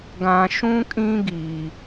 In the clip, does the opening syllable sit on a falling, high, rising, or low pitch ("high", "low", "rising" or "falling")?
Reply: low